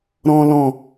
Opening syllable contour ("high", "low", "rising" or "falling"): low